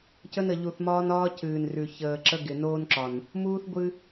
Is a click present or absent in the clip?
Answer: present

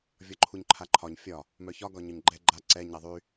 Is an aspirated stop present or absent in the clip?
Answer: present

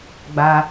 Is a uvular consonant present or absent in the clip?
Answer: absent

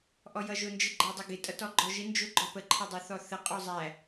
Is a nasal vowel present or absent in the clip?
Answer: absent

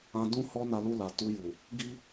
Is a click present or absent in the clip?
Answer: absent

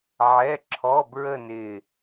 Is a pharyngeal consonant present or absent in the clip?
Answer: present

